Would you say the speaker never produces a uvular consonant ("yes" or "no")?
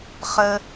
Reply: no